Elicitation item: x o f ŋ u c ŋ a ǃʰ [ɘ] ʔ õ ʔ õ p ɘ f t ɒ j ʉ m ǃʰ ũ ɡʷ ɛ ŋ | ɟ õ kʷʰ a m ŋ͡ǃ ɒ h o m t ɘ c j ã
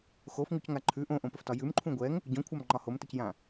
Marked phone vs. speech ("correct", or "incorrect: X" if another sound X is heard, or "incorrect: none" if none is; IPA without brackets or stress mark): incorrect: ʉ